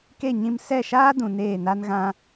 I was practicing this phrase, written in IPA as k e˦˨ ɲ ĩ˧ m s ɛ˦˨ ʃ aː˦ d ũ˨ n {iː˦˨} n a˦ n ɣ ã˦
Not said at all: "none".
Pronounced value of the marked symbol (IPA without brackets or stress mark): eː˦˨